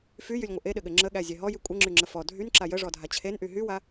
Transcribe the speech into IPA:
fyjylʲŋʷɘ ʔeɗɘɠɘ ŋ͡ǁəɠæzʲɛ ɦɔjy kʷʼɘŋ͡ǁyŋ͡ǁə fɔ dʱynǁa jəʐɔdʱa t͡ɕʰenʔy ɦywa

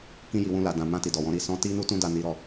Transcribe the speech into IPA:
kĩ˦ ji˧wũ˦la˧ dã˨ mã˧ ti˨dɔ˨wɔ̃˨˦ ɾi˧sɔ̃˦ ti˦nu˦ tũ˦da˦˨ni˨˦ ɾɔ˦˨

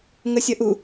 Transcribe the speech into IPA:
ŋəsʲʌʔu

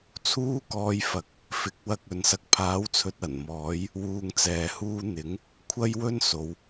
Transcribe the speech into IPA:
t͡sʰuː˥kɔː˧jfɐ˨˥k̚ | fɪ˨˥k̚wɐ˧k̚ ɵ˨˥nsɐ˧k̚ pʰaː˨˥wt͡sʰɵ˨t̚ ɐ˨˩nmɔː˨˥j | wuː˧ŋt͡sɛː˨huː˥ n̪ɪ˨˥ŋ | kʷʰɐ˥jwɵ˥n so˨˧w

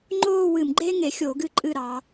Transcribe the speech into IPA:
ŋ͡ǃoː˥˧ wɨ˧˩˧mɡ͡ǃeː˥ŋe˩˧xʲoː˧˩˧ ɡɨ˧˩ǃʼɨ˧˩ ɾɑː˩˧

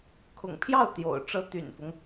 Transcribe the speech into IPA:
kʰʊ̰˨˩ŋpʰjɑ˥˩ʊ̯ t̪jo̰˨˩ʊ̯ ʈ͡ʂɤ˧˥ t̪y̰˨˩nfʊ˦ŋ

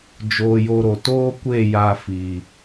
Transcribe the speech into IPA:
d͡ʒoː˧jo˧ɾo˨ toː˦kʷe˦˨ ja˧fiː˨

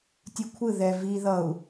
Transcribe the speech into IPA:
tʲukʷʰɯ ðɛ vi ðʌu̯

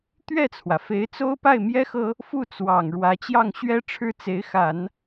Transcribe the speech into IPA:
t̪ɥɛ˥˩t͡sʰwä˩fe˧˥ɪ̯t͡so˥ʊ̯ pa˥˩ɪ̯mjɛ˥xɤ˥ | fu˥˩t͡swɑ˨˩ŋ ɻwä˧˥t͡ɕjɑ˥˩ŋ ɕɥɛ˥ʈ͡ʂʰɻ̩˥˩t͡se˧˥ɪ̯xa˨˩˦n

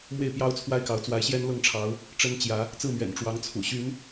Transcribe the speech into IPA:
mwe˥˨ɪ̯pjɑ˦ʊ̯t͡sʰwa˦ɪ̯kɑ˨˦ʊ̯ t͡swa˨˦ɪ̯ɕjɛ˦nlɤ˥˨ŋʈ͡ʂʰɑ˨˦ʊ̯ | ʈ͡ʂə˦nt͡ɕjä˨˦ | t͡sɹ̩˥˨mɥɛ̰˨˩n ʈ͡ʂwɑ˨˦ŋt͡sʰṵ˨˩ɕy˨˦n

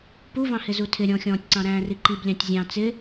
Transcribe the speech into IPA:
puvɑ̃hɪ zutʰɪɾʲɔ̃xʲɔ̃ːtʲ ǀɑ̃ɾæ̃ːriǃib lʲɑ̃tʲzʲɑ̃ t͡sɪ

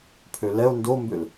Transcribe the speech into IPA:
pʰølɛo̯ ndombøl

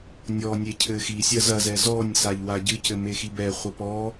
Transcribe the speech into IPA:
nʲɔnʲe cʰɘxisʲɐ zɐzɛ zɔnʲsaʎ waɟɨcɘ mexibɛχʷɐ pɔ

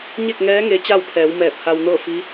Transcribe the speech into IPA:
ɲe˥˨k̚ŋɛː˧˥ ŋe˧˥t͡ɕa˥˨wpʰɛː˩˧wmɛː˧˩p̚ ha˧w nɤː˥˨fi˧˥

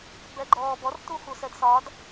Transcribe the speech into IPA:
bɛɡ͡ǃɔːbɔr tuxusɛdsɒd

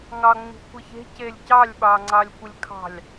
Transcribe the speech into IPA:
ŋɑŋ͡mi̤ kʷəçe̤celʲ cɑlʲɓɑŋ͡ǀɑlʲ kʷəlʲkʰɑ̤lʲ

